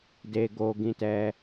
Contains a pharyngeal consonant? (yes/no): no